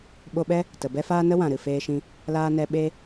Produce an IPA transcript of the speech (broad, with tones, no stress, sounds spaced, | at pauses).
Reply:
ɓ o˧ ɓ ɛ˦ | t ə˨ b ɛ˦ f aː˦ n ə˦ w ã˨ ɾ ɨ˨ f eː˧ ʃ ĩ˧ | l aː˦ n ɛ˦ ɓ e˦